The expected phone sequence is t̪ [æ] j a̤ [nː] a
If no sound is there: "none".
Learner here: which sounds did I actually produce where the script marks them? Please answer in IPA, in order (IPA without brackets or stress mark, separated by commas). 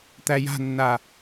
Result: æ, nː